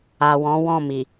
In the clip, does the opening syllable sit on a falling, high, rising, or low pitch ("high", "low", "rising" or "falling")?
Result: low